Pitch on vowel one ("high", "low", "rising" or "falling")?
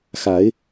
rising